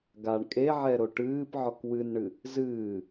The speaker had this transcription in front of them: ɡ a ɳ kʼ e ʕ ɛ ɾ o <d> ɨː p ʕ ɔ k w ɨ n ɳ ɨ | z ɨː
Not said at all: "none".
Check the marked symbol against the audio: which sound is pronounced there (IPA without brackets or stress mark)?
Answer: ʈ